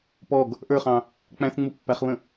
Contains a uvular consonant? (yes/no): yes